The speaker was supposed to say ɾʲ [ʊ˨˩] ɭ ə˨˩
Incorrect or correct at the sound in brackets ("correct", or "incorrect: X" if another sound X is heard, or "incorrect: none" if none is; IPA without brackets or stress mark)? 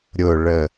correct